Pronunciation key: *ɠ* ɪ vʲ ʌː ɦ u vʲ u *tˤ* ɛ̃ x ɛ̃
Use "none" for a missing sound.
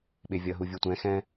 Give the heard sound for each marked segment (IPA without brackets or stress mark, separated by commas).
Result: ɓ, tʷ